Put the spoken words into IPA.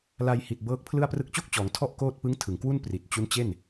l a˧ j h i˨˩ t̚ b ɤː˦˥ k̚ pʰ l ɯ˥˩ a̯ p r ɯ˦˥ k̚ t͡ɕ o˥˩ k̚ t͡ɕ ɔː˩˦ ŋ tʰ ɔ˥˩ ʔ k oː˥˩ t̚ p ɯ˦˥ ŋ tʰ ɯ˨˩ ŋ k w u˥˩ n p r i˨˩ t̚ t͡ɕ u˦˥ n t͡ɕ e˥˩ n

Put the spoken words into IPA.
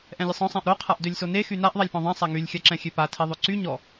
ʔ ɛ̃ lʲ e sˤ ɔ̃ sˤ ɛ̃ ʔ ɾ o qʰ a ʔ d ø lʲ s o n e x y n a ʔ ðˤ a lʲ p ɔ̃ ðˤ ɛ̃ sˤ a ŋ y lʲ xʲ a ǁ ɛ̃ xʲ ø p a tʰ e ðˤ o ǀ y ɲ ɔ

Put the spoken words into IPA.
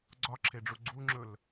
ɡ͡ǀ ɒ ǁʰ e ɖ͡ʐ u ɡ͡ǀ u ŋ͡ǁ ɵ l

